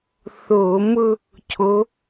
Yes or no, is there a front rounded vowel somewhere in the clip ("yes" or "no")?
no